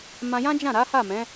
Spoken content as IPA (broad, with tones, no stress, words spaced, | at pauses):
mã˧jã˦d͡ʒã˦˨ɾa˨˦ ha˦˨mɛ̃˨˦